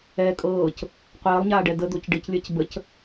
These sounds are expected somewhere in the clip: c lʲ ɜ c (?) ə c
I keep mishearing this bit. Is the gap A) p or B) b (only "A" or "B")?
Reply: B